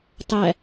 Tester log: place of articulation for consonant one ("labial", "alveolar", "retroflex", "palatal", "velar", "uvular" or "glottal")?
alveolar